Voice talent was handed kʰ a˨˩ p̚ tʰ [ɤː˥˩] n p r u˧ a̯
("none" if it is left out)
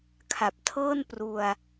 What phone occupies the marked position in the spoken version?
ɤː˥˩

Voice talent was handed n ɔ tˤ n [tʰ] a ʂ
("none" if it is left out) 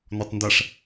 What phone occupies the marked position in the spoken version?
d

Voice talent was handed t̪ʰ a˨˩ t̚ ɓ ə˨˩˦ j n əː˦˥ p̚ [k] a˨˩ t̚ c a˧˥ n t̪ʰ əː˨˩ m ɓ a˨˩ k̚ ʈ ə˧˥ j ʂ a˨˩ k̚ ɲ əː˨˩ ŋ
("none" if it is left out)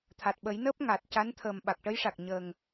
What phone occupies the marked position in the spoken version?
ŋ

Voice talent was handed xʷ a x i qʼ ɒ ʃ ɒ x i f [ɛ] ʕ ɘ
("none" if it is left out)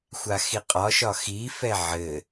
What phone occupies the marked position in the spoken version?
ɛ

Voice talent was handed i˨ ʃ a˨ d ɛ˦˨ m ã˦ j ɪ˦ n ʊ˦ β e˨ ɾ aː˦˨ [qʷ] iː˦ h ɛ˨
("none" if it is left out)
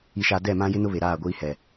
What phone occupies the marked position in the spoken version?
ɡʷ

